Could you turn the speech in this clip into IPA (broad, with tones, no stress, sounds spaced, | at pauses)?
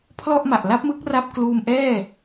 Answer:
pʰ l ɔ˥˩ ʔ m a˨˩ ʔ l a˦˥ p̚ m ɯ˦˥ k̚ r a˦˥ p̚ k l uː˧ m ʔ ɛː˥˩